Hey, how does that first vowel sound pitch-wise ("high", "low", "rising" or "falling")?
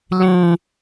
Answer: high